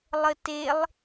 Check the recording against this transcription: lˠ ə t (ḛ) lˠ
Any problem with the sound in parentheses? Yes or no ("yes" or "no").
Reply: yes